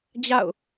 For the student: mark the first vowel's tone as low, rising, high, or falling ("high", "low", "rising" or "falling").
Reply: falling